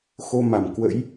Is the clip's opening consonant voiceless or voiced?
voiceless